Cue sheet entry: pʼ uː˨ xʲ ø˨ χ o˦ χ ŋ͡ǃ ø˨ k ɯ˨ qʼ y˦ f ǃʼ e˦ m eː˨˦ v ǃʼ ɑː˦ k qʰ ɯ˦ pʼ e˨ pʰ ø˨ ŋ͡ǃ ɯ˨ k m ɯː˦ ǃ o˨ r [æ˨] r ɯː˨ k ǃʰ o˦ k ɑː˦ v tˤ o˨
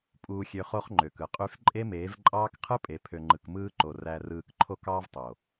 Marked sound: correct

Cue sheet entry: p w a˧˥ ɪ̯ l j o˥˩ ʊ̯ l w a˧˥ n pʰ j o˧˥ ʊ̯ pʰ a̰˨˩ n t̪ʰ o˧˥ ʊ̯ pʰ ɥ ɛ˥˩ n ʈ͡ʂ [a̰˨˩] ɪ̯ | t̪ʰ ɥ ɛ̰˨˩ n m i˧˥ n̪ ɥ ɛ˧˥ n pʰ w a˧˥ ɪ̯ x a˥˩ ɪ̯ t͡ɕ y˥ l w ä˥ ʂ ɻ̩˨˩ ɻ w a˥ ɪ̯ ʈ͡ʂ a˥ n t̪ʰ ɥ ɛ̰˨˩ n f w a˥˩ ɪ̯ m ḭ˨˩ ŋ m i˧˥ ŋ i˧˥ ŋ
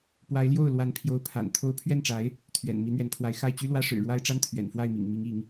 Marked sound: incorrect: a˧˥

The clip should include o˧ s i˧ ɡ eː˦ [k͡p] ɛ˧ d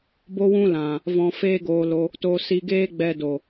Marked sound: incorrect: ɡ͡b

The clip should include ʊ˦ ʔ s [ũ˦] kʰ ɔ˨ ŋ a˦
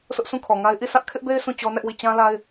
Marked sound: incorrect: ũ˦˨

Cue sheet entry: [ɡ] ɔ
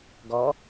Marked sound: correct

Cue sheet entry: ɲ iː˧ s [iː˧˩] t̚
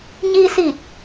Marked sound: correct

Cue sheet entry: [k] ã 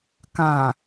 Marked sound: correct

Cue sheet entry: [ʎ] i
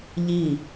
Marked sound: correct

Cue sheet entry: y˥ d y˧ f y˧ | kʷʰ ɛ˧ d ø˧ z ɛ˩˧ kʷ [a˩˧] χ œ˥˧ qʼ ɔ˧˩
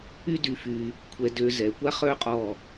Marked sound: incorrect: a˥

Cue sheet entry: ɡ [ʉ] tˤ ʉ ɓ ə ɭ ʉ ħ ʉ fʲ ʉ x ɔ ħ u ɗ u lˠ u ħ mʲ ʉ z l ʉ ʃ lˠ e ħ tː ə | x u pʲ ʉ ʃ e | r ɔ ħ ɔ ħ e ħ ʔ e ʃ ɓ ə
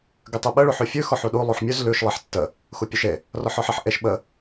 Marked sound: correct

